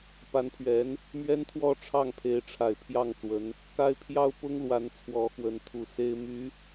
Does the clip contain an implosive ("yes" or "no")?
no